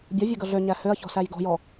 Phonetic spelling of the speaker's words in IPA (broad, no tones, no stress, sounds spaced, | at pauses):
bʲ ʌ vʲ ø ɡ ʌ ɮ ø ɲ æ h ø ɐ̯ ç ɔ̤ s æ j ɡ ɔ̤ j ɔ